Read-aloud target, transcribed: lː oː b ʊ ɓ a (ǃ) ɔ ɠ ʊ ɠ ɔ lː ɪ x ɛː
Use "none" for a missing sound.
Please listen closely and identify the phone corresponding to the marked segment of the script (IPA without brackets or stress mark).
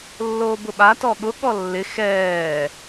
t